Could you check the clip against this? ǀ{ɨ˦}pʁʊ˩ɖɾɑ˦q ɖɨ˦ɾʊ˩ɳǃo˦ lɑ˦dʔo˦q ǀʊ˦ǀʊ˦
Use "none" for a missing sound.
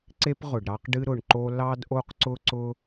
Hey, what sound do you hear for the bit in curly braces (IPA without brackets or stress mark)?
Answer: e˦